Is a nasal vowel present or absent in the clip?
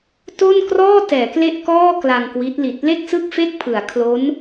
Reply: absent